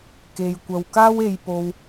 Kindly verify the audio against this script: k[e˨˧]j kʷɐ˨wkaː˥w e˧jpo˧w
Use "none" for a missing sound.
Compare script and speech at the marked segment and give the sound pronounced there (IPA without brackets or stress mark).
e˨